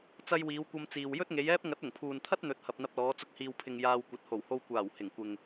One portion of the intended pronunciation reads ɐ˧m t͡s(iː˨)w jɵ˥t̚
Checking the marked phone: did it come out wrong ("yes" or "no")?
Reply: no